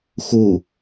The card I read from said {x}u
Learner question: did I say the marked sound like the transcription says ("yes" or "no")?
yes